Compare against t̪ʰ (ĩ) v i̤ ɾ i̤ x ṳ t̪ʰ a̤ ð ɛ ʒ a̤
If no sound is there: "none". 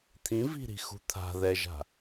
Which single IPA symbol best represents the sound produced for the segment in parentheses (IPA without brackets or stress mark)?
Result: ĩ